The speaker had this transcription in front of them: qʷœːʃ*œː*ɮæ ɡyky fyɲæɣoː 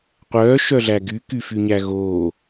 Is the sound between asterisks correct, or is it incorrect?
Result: incorrect